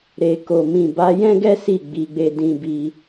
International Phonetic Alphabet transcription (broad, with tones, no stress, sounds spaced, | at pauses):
ɾ e˨ k o˨ m ĩ˨ b a˨˦ j ɛ̃˦ ɡ ɛ˦ s i˦˨ ɡ͡b i˨˦ ɡ͡b e˧ d ĩ˧ b i˧